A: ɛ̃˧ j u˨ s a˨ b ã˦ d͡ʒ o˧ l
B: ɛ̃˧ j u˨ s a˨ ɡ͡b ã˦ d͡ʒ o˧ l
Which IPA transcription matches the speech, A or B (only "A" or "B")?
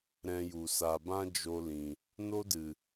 A